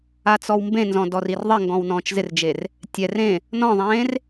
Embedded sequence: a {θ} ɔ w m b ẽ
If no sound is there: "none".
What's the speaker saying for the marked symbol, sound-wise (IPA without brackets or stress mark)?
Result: t͡s